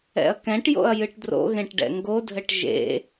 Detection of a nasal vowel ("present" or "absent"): present